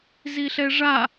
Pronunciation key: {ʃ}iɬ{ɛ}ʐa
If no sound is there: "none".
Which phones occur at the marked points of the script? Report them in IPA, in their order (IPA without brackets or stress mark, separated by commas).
z, ɛ